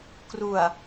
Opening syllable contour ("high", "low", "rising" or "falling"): low